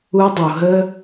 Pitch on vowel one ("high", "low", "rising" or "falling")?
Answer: high